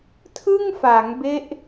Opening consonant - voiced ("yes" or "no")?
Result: no